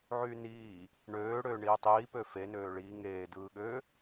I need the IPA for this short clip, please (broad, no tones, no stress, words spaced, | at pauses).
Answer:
ʕyniː | ɳøː ɽøːɳiːtˤiː pøfe nøːɭiː ŋeː dɯːɠø